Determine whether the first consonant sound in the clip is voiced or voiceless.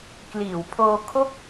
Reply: voiceless